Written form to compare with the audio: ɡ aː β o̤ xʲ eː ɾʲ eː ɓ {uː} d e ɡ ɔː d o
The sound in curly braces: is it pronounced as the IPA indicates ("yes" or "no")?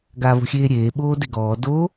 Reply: no